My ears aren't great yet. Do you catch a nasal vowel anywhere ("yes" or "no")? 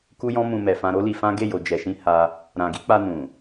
yes